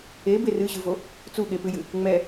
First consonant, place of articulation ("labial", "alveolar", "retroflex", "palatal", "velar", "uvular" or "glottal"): labial